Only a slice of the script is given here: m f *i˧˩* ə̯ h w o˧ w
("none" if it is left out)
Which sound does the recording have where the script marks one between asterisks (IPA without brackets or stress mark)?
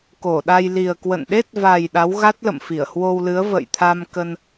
i˧˩